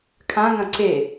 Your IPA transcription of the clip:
kʰãŋɐ̃ ǀe

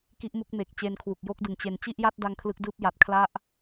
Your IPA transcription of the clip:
ki˦˥ʔmu˦˥k̚me˨˩k̚ t͡ɕe˧nkʰwu˨˩k̚jo˦˥k̚dɯ˨˩ŋ t͡ɕe˨˩n t͡ɕi˥˩ʔja˥˩t̚ da˧ŋ kʰlɯ˦˥k̚dɯː˥˩p̚ ja˨˩t̚kʰla˦˥ʔ

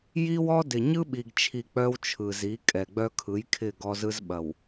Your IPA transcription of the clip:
ji˦wɔ˦dɪ˨ ɲɯ˦ɓi˨ɡt͡ʃʰi˨ k͡pœ˦wt͡ʃʰɯ˨zi˨˦ kʼɛ˨ɡ͡bœ˦kʰɯ˨˦j kʰɪ˦˨ɡɔ˦zɯ˦zɓɐ˨w

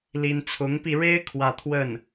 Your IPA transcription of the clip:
li˥n t͡sʰʊ˧˥ŋpi˧ɻe˥ɪ̯ kʰwä˥˧t̪ʰwə˥˩n

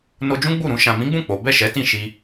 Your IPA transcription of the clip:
no˧d͡ʒũ˦ɡ͡bu˦˨ ɾũ˧ ʃã˨mĩ˨˦ɡ͡bũ˦˨ k͡po˨˦ bɛ˦˨ʃɛ˨˦tĩ˦˨ ʃi˧

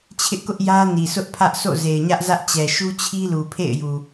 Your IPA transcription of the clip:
t͡ɕʰɪ˦ʔkʊ˦ʔ jä˦ni˨ sʊ˦ʔpʰä˦ʔ so̰˦˨ze˨ɪ̯ɲä˦ʔzä˦ʔ t͡ɕɛ˨ʃu˦t͡ɕʰi˦ lu˨pʰḛ˦˨ɪ̯ju˨

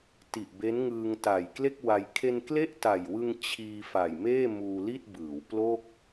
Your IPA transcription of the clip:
ti˨˩ʔbe˦˥nŋɯː˧ŋ ta˨˩jkle˥˩k̚wa˧j kʰe˧nkle˥˩ʔta˨˩jwɯ˧ŋ t͡ɕʰiː˧fa˨˩j meː˥˩muː˧li˥˩t̚bɯː˩˦w plo˥˩k̚

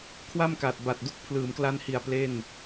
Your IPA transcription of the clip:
kʰwa˥˩mka˨˩t̚ba˨˩t̚ du˥˩k̚ pʰlɯː˩˦mkla˦˥nhi˨˩a̯ ple˥˩n

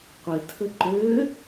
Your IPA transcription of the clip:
qʷɪtʰə ǃø

